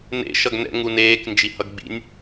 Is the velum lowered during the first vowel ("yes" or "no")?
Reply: no